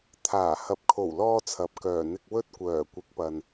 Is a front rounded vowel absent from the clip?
no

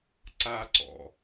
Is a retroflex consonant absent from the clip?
yes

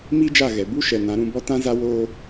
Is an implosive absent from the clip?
yes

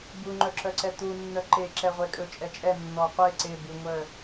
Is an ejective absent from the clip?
no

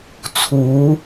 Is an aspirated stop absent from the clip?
no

